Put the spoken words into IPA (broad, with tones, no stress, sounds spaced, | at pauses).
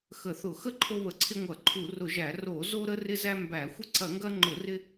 x ə˧˩˧ θ ʊ˧˩˧ x ə˦ ǃʰ o˦ β ə˧˩˧ ǀʰ ɪ˦ ŋʷ ɐ˧˩˧ ǃʰ u˧˩˧ r ʊ˧˩˧ ʒ æ˧˩˧ r o˧˩˧ z o˦ ɾ ə˦ r ɪ˦ z æ˦ m b æ˧˩˧ xʷ ɪ˦ ǀ ɐ˧˩˧ ŋ ɡ ɐ˦ ŋ͡ǃ ʊ˧˩˧ r ɪ˦